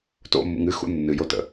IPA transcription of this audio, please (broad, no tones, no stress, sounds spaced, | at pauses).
t o̰ mː ṵ ŋ ɨ x ṵ nː ɨ j o t ə̰